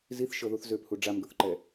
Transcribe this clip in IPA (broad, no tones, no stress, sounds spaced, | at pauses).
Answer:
z i θ ʃ ɤ ð u θ z ø p h u ɖ͡ʐ a m ɡ ɤ θ ǃ ɛ